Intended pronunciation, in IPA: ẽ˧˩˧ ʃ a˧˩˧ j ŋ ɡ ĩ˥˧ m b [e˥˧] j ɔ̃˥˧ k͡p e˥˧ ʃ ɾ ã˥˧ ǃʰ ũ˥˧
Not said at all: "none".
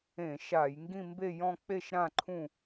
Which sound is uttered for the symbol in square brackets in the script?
e˥˧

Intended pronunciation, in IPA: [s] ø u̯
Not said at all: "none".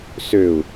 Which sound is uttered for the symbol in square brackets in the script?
s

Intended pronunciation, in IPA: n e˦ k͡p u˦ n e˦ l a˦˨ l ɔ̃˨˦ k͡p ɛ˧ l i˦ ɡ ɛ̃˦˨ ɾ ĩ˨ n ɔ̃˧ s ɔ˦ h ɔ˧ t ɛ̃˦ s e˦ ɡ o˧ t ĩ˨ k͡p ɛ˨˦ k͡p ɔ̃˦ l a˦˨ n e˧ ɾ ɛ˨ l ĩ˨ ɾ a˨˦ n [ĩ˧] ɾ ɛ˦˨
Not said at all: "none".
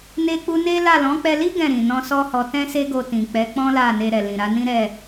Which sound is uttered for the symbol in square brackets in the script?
ĩ˦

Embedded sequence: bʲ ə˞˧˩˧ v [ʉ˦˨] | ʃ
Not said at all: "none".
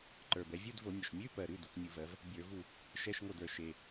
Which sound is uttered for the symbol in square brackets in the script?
u˦˨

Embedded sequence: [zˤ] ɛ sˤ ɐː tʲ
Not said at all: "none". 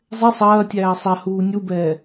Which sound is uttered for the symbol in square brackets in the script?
zˤ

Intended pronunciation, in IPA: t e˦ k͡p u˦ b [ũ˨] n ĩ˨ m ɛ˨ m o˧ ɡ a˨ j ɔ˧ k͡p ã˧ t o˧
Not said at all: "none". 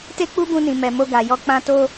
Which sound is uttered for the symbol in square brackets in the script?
ũ˧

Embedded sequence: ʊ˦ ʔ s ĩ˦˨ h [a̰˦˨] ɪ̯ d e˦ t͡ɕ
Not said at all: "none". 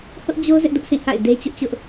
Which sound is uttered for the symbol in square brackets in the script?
a̰˦˨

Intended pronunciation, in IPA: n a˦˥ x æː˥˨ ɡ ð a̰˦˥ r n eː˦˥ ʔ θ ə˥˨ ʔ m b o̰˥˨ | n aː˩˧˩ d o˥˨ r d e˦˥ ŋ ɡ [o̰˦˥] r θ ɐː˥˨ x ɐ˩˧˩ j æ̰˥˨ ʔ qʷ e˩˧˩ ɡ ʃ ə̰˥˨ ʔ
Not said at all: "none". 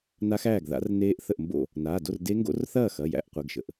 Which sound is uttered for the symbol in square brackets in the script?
o̰˦˥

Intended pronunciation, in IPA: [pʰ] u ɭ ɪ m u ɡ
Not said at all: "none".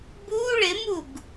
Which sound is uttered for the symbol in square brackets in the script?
b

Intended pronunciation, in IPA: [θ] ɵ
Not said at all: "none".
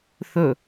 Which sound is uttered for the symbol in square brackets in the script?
θ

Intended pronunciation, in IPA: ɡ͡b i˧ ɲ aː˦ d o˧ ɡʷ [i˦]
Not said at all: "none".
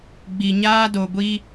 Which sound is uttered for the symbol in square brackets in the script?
i˦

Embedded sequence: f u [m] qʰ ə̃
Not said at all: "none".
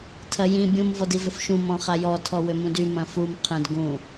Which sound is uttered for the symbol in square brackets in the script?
m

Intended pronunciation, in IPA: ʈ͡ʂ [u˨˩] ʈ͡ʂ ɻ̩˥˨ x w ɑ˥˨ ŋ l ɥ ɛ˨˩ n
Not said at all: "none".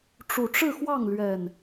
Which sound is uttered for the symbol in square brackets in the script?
u˨˩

